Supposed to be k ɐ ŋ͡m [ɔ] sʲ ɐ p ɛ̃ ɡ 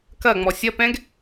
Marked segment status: correct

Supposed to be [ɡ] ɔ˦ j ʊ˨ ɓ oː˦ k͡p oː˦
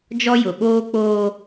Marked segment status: incorrect: d͡ʒ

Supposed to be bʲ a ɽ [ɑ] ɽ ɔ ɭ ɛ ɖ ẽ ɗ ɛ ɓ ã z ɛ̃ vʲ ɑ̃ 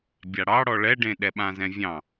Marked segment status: correct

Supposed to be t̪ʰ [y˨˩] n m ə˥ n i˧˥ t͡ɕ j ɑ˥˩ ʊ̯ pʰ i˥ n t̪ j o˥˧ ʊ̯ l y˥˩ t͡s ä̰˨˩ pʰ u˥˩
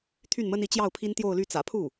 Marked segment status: incorrect: y˥˩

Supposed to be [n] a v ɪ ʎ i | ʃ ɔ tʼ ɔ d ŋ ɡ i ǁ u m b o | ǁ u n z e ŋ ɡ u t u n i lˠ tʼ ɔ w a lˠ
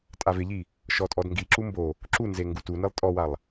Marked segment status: incorrect: tʼ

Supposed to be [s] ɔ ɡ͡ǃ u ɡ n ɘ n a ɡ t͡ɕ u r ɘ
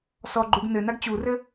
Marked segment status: correct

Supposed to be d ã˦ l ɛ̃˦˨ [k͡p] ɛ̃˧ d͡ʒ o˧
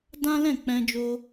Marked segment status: correct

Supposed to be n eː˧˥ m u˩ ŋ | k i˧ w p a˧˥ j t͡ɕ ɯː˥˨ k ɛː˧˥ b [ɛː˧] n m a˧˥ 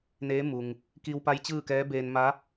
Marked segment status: incorrect: eː˧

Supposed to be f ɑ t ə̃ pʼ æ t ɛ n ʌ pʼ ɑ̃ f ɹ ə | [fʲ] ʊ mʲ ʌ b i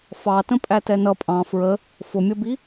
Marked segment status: incorrect: f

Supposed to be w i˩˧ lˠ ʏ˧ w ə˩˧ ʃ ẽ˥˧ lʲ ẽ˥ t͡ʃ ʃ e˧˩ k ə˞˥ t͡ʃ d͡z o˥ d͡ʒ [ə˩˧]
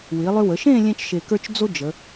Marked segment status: correct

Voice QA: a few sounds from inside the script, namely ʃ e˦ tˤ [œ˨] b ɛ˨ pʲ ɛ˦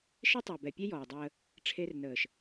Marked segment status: correct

